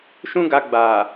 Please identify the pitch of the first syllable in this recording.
high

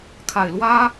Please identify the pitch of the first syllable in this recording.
low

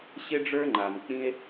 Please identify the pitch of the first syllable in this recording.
high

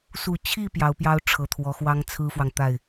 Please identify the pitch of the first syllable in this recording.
low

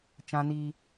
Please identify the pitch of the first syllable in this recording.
high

